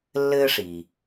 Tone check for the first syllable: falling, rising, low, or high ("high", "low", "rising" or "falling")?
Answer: high